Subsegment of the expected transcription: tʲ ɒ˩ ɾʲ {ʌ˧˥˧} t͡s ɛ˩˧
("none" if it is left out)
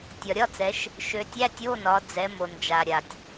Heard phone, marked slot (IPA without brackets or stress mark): ɒ˧˥˧